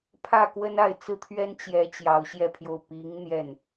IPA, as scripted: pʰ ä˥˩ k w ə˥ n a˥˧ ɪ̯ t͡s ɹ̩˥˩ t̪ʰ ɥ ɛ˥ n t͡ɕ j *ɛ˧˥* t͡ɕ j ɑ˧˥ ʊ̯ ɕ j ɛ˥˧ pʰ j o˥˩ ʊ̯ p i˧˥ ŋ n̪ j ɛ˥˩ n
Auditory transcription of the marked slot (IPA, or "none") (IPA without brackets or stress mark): ɛ˧˥